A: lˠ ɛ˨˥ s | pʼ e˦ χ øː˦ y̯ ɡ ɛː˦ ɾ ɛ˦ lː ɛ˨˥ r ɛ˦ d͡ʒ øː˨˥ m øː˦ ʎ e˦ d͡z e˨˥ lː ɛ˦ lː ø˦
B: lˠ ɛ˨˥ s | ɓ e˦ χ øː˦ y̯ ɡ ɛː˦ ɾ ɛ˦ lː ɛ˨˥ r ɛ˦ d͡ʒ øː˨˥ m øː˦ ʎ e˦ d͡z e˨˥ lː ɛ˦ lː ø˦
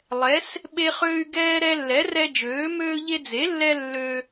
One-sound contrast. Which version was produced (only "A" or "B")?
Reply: B